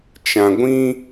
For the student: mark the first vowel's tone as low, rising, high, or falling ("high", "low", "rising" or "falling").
low